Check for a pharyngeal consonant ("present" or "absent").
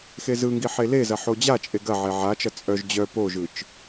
present